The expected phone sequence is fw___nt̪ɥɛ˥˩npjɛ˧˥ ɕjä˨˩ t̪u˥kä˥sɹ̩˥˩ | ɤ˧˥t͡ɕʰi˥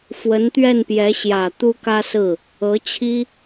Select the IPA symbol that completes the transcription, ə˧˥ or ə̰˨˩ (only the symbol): ə˧˥